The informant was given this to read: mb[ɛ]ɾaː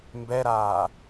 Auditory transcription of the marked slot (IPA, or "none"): ɛ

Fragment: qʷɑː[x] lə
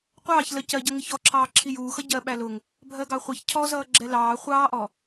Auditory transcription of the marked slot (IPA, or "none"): ç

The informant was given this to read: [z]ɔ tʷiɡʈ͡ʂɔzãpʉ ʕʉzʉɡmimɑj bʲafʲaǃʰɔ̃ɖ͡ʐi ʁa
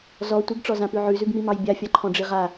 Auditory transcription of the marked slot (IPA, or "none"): z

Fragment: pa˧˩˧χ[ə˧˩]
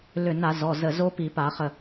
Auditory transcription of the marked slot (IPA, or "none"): ə˧˩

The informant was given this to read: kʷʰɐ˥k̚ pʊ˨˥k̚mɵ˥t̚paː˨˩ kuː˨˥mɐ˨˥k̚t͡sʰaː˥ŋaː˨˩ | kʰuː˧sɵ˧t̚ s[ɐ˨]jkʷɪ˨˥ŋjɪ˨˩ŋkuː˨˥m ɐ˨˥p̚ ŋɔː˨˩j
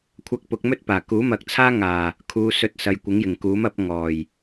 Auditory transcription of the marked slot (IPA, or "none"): ɐ˨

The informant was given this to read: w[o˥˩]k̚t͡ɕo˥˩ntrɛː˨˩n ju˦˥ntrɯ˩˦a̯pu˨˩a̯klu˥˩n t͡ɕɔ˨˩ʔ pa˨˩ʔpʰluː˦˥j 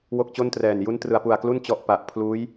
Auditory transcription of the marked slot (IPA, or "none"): o˥˩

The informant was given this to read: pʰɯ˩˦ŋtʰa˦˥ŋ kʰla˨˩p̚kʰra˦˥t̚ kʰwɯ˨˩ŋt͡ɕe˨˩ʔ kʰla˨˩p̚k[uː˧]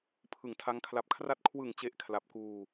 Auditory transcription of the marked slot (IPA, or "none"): uː˧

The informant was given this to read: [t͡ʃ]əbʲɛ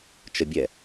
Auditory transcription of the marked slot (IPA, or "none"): t͡ʃ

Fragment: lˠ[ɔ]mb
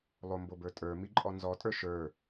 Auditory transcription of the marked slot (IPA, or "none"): o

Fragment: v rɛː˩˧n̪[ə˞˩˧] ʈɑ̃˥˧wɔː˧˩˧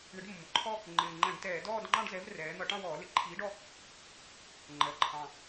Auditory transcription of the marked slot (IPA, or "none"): ʌ˩˧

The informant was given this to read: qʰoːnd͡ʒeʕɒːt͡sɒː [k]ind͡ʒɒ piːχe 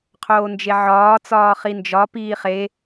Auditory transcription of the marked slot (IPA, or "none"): χ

